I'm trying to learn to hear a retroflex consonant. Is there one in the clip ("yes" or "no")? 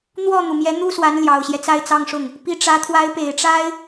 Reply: yes